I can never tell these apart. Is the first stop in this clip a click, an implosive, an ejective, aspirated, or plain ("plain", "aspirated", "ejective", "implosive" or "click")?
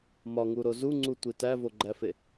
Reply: click